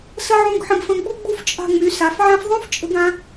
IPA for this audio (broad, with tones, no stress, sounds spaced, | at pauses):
s ə˥ ʕ ũ˧˥˧ ɡ ħ ə̃˨˥ ɡ f ə̃˨˥ ɡ͡b u˥ ɡ͡b u˥ f t͡ʃʼ a̤˧˥˧ ŋ͡m y˩˧ s a˩˧ f ʕ ã˥ f ðˤ ũ˥ f t͡ʃʼ ə̤˨˥ ɡ ã˨˥